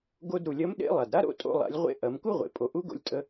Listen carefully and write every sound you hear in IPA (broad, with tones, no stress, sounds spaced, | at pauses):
ɡ o˧ d ɾ u˩ lʲ ɐ˧˥ m ɗ ḛ˧˥ lˠ a˩ d ɾ a˥ ɾ o̰˥ tʼ o̰˧ lˠ a̰˩˧ lʲ ʁʷ ḛ˧˥ ʔ ɐ˩˧ m k u˥ ʁʷ ḛ˩ pʼ o˩˧ ʔ u˧˥ ɡ o̰˧ lʲ tʼ ə˧